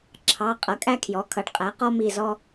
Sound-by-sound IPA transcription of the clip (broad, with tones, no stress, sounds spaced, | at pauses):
ǁʰ ɑ˩˧˩ qʼ ʌ˩˥ kʼ æ˥ kʰ j ɔ˩˥ kʰ ʌ˩˥ ɖ qʼ æ˩˥ q ɔ˥ m i˦˨ z ɔ˥